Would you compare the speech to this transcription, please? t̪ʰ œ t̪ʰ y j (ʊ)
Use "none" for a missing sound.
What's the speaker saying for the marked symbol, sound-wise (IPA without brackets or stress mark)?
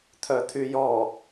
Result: ɔ